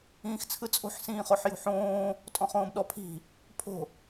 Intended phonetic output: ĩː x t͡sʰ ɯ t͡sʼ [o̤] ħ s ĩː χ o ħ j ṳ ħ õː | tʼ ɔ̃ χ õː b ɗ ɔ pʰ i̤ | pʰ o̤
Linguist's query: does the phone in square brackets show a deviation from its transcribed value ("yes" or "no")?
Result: no